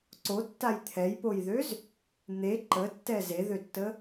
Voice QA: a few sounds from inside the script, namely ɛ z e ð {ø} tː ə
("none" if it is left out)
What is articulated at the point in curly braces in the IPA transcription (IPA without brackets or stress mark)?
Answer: ø